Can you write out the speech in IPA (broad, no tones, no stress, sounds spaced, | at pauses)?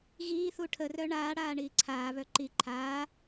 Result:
ɣ iː θ u ʈʰ ə r œ ɳ aː ɽ aː ɳ iː ǀʰ aː β œ ǃ i ǃʰ aː